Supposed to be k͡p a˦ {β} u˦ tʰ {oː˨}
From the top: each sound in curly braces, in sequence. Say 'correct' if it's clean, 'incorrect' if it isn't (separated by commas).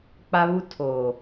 correct, correct